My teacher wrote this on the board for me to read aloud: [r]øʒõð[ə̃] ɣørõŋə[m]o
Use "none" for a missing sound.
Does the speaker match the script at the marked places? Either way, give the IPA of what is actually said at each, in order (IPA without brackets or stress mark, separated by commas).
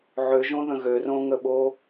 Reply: ʕ, ə̃, ɓ